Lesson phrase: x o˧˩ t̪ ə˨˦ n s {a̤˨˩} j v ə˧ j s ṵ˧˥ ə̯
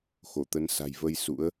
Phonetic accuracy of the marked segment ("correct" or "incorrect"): correct